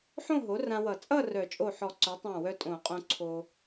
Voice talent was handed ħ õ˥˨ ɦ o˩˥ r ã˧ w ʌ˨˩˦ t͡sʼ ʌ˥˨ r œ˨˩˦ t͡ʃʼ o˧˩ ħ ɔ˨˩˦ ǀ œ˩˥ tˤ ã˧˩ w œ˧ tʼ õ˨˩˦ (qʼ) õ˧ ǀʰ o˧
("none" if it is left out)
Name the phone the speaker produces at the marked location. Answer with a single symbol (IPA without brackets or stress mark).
qʼ